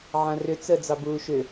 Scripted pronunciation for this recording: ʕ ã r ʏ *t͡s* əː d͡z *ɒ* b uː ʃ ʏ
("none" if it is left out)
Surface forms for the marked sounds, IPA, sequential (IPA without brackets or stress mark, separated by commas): t͡s, ɑ